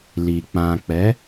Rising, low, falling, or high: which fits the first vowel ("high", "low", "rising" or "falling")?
low